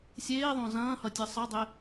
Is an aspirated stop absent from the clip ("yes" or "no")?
yes